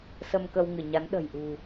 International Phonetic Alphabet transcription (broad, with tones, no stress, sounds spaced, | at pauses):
s ə˧ m k ə˧ w ŋ ɨ˧˩ ɲ a˨˦ n ɗ ə̤˨˩ j ʔ ṳ˨˩